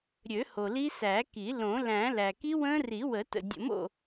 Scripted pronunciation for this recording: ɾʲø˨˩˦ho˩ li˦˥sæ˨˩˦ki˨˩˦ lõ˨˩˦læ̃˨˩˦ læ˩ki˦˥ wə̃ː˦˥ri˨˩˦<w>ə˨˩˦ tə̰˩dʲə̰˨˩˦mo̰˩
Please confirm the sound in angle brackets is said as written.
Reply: yes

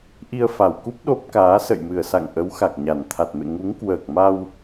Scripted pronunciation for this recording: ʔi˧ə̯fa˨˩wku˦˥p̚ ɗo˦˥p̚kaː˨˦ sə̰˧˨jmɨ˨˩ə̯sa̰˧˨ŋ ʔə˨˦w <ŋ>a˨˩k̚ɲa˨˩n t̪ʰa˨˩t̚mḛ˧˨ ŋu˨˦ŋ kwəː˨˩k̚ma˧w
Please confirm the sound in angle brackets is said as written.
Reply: no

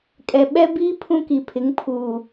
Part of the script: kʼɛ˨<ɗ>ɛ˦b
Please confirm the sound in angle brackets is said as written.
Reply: no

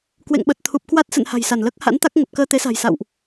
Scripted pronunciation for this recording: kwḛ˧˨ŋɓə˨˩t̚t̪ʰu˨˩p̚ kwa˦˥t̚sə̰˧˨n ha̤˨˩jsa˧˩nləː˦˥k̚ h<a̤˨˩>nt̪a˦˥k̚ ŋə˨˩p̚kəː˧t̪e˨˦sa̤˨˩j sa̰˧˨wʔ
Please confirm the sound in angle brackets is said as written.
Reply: no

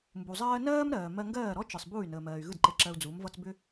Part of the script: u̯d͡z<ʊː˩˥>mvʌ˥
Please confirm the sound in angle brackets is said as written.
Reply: no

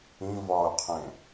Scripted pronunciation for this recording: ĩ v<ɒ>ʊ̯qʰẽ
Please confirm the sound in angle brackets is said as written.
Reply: yes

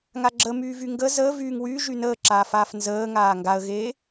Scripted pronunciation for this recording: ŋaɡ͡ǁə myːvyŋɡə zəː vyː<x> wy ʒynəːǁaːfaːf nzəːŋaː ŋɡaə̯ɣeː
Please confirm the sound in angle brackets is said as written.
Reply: no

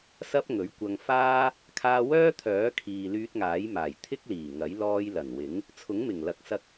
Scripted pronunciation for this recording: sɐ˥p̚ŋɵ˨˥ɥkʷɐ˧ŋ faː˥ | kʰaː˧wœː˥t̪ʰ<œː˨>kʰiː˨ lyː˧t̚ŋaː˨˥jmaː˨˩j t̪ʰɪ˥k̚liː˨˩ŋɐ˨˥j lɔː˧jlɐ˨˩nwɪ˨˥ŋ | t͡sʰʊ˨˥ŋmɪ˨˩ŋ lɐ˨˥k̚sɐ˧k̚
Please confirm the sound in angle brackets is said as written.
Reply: no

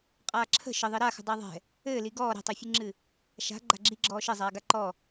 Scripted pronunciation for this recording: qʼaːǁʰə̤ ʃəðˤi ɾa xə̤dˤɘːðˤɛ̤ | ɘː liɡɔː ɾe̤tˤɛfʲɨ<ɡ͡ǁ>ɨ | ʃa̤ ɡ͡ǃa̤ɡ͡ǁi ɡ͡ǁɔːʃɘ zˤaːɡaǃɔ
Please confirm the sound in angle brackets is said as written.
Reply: no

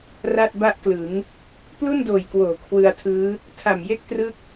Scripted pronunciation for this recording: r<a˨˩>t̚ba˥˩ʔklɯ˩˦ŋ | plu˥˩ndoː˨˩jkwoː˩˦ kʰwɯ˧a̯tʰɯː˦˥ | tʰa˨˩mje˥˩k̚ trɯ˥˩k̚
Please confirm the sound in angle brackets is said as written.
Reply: no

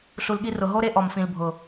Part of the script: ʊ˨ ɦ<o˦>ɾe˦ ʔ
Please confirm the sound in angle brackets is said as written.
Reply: yes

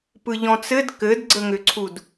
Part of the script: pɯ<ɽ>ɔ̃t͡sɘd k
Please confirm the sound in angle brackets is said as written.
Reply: no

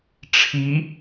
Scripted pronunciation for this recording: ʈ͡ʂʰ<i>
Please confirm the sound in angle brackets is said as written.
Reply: yes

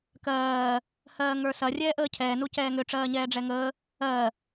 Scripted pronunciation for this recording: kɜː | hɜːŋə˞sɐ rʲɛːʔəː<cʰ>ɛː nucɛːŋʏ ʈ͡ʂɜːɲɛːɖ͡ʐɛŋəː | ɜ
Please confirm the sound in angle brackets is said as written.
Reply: yes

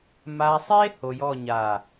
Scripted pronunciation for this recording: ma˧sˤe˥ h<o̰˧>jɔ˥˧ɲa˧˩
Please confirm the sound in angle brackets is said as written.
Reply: no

